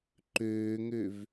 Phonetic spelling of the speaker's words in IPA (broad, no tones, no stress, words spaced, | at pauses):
ǃøːŋøv